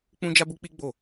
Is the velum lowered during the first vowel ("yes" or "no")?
yes